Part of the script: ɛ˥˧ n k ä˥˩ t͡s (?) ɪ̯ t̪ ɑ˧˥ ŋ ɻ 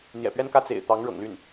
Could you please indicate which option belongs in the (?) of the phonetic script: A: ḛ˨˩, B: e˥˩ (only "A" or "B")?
A